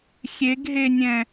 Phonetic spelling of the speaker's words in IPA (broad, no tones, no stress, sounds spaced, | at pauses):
xʲ e ɡ ɦ e nʲ ɛ̃